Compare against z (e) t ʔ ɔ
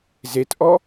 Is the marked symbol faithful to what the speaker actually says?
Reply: yes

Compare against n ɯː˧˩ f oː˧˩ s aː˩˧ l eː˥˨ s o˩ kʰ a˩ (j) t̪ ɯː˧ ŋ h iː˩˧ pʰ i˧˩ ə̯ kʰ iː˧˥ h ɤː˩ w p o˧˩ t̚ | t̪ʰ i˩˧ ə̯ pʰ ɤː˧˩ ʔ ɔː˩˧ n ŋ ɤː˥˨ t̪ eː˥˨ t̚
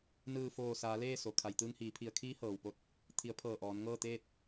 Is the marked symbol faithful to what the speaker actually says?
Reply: yes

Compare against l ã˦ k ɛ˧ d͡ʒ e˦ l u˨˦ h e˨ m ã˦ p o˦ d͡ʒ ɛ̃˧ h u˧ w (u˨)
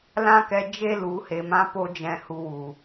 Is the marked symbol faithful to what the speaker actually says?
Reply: yes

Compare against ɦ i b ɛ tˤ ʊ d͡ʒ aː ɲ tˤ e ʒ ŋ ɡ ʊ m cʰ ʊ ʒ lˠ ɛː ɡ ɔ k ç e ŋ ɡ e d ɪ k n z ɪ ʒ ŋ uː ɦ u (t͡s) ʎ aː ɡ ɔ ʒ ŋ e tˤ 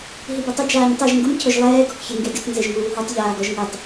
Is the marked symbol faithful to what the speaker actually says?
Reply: no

